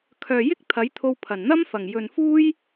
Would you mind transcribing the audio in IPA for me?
kʰ œː˨ j ɪ˥ k̚ t̪ʰ ɐ˨˥ j t̪ʰ o˧ w pʰ ɐ˨˩ n n̪ ɐ˥ m f ɐ˨˩ ŋ j ɵ˨ n f uː˥ j

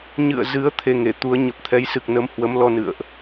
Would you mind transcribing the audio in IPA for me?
ɲ ɨ̰˧˨ ə̯ z ɨ˨˦ ə̯ t̪ʰ e˧ ŋ e˧˩ t̪ u˨˦ ə̯ ɲ ə˨˩ p̚ t̪ʰ ɛ˨˦ j s ɨ˨˩ k̚ n ə˨˦ m h w ə˨˦ m l ɔ˧ n ɨ̰˧˨ ə̯ ʔ

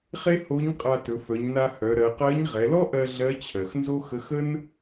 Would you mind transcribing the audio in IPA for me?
χ e˥ h o˧˥ ɲ qʼ a˧ t ɵ˩˧ f œ˩˧ ɲ n a˧ h œ˩˧ ɾ ɜ˩˧ q ɜ˧˥ ɲ ʁ ɛ˩˧ l ɔ˥ ʔ ɜ˧ ɮ ɜ˧˥ t͡ɕʰ ɜ˩ x n z o˥ x ə˧˥ x ə˥ n

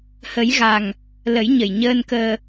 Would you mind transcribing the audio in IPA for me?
h ə˨˩˦ j ɣ a˨˩ ŋ | l ə˨˩˦ j ɲ ə˨˩ j ɲ əː˧ n k əː˧

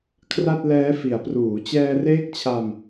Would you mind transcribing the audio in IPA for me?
kʰ r a˥˩ t̚ l ɛː˦˥ f i˩˦ a̯ p r uː˩˦ t͡ɕ ɛː˧ r eː˦˥ k̚ t͡ɕʰ a˧ m

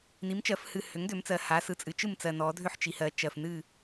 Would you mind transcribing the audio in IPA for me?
n i˩˥ m t͡ʃ ɜ˩˧ f h ɨ˨˩ h ʏ˩˥ ŋ d ʏ˩˧ m t͡s ɜ˨˩ h a˩˧ s ɯ˨˩ t͡sʼ ɨ˩˧ t͡ʃ ɯ˥˩ m t͡s ɜ˨˩ n ɔ˩˧ dʱ ʏ˥˩ ħ t͡ʃ i˩˧ h ɜ˩˥ t͡ʃ ɜ˨˩ f n ɨ˥˩

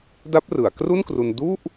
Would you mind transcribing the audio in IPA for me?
d a˦˥ p̚ r ɯ˩˦ a̯ k r u˥˩ n k r u˧ n d u˥˩ ʔ

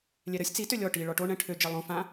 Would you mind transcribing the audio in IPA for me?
lʲ ɛ ɾ ə sʲ t͡s i t ø lʲ ɔ ʈ i ɭ ɔ ʈ o ɳ ɛ̃ ʈʰ ø d͡ʒ ɛ lˠ õ f ã

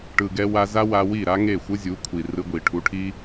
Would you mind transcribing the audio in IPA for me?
ʈ ɯ˨ ɡ ɛ˧ w a˧ z a˦ w a˧ w i˦˨ ɾ a˦ ŋ e˦˨ xʷ ɯ˦ zʲ u˨˦ kʷʰ i˨ r ɯ˧ ɡʷ i˨ ʈʰ u˨˦ ʈʰ i˦

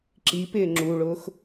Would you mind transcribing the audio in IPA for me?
ǁ i p ɪː ŋ͡ǁ u ɭ ʊː x

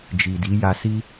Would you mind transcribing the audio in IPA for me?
d͡ʒ i˨ d i˨˦ j a˧ s i˦

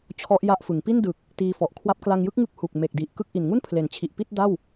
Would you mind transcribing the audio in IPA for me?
t͡ɕʰ ɔ˦˥ ʔ j a˦˥ ʔ f ɯ˩˦ ŋ p i˥˩ n d ɯ˨˩ k̚ | t iː˧ f ɔ˨˩ ʔ kʰ w a˦˥ p̚ k l a˧ ŋ j ɯ˥˩ k̚ ŋ ɯ˦˥ k̚ h u˨˩ k̚ m e˨˩ k̚ d i˨˩ ʔ k ɯ˥˩ k̚ ʔ i˨˩ n ŋ u˥˩ n pʰ l e˩˦ n t͡ɕʰ i˨˩ ʔ p i˥˩ t̚ d a˥˩ w

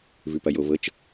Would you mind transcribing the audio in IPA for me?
v ʉ p ɐ j o v ɤ t͡ʃ

